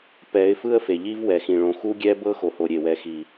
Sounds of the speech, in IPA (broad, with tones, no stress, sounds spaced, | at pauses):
p ɛ˨˦ ɪ̯ f ɯ˦ ə̯ f e˨ ʎ i˦ v w ɛ˨ x ĩ˨ ɭ õ˨ x u˦ ɡʲ ɛ˦ b ɤ˦ x o˨ h o˨ ɾʲ e˨ w ɛ˨ x i˨